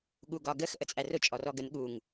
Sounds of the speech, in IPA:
ɠ u ɡ ɒ ɡ ə x ʔ ə t͡sʼ æ r ʊ t͡ʃʼ ɔ r ɔ ɡ ə n ɠ u ŋ

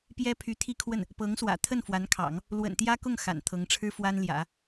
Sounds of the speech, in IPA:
p j ɛ˥ pʰ y˧˥ t̪ʰ i˥˧ kʰ w ə˥˩ n | p ɤ˧˥ ŋ s w ä̰˨˩ t̪ʰ ə˥˩ n f w a˧˥ n kʰ ɑ̰˨˩˦ ŋ | l w ə̰˨˩ n t̪ j ä˥ k ʊ˥˩ ŋ x a̰˨˩ n t̪ʰ ɤ˧˥ ŋ ʈ͡ʂʰ ɻ̩˥ f w a˥ n l j ä̰˨˩˦

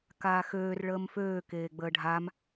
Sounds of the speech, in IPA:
k aː x øː r ɭ əː m f øː k eː ɡ͡b əː ɖʱ a m

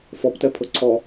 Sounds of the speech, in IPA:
f ɔ p t ɛ pʰ ɤ ǀʰ ɔ

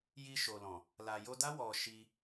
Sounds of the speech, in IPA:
j i˧ ʃ o˨ l ɔ̃˨ | l a˨ j o˧ d a˦ w ɔ˧ ʃ i˧

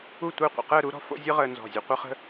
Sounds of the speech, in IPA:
u˥˧ tʷ əː˥˧ qʷ ə̰˧ q əː˥˧ ɾ u˥ ɾ ɔ̤˧ f o̰˥ zʲ ɯ˥ ʁ əː˧ n z ɔ̤˧˩ zʲ ə˧ qʷ ə˥ χ ə̤˥

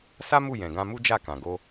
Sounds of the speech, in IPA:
s a˦ m u˦˨ j ɛ̃˨ ɡ ã˧ m u˦ d͡ʒ a˦˨ k ã˨ ɡ o˧

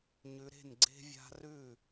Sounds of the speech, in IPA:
ɲ ʉ˨˦ ɾ e̤˥˩ n ɡ͡ǀ e̤˦ vʲ a̤˦ r ʉ˥˩

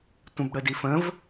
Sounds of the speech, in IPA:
tʷ ə̃ b ɽ ə d i f ə̃ v

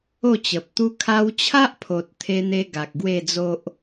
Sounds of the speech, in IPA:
o˥˧ t͡ɕ ə˨ p̚ t̪ u˦ kʰ a˧ w t͡ɕʰ a˦ ʔ pʰ o˨ t̚ t̪ʰ e˧ n̪ e˧ ɡ a˨ k̚ ɡ w e˥˧ d͡z o˦ ʔ

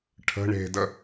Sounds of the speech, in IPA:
ʈʰ ə̤ ɳ e̤ d ə

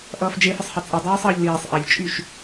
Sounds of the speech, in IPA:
ʔ ʌː f d͡ʒ e f ə sˤ h e t͡sʼ i dˤ ʌː sˤ ʌː ʎ l iː sˤ ʔ a ʎ t͡ʃʼ y ʃ

